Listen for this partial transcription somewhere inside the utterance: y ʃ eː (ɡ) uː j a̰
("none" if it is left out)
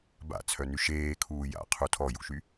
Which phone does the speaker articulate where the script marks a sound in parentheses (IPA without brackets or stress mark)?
kʰ